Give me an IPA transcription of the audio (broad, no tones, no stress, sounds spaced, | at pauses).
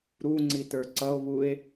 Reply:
ɾ u ŋ͡ǀ i t ə˞ ǀ ʌ o̯ β u e̯